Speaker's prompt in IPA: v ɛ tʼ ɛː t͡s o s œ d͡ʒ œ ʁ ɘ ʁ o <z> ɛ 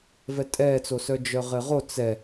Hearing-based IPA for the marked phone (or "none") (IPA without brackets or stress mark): t͡s